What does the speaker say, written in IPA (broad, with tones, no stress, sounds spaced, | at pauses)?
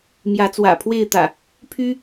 m j ä˨˦ t͡s w ä̰˨˩ pʰ w e˥˨ ɪ̯ t̪ ä̰˨˩ | pʰ y˦